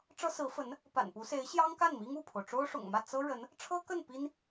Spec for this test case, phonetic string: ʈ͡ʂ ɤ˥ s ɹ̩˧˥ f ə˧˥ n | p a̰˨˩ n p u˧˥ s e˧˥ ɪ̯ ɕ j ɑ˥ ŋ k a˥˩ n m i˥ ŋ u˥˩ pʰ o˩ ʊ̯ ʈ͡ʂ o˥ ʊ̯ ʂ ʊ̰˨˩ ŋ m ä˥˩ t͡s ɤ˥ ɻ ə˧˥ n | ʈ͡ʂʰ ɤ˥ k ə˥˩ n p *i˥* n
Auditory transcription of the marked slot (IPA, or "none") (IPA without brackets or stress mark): i˥